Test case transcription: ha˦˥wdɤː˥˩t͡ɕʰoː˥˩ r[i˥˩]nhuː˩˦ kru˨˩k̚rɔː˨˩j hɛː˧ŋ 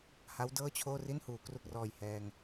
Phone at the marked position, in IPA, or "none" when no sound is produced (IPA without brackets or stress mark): i˥˩